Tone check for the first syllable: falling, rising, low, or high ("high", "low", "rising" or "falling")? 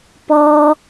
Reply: high